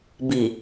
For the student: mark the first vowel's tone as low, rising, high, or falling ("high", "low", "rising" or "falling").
low